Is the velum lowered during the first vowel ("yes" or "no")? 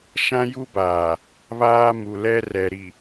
yes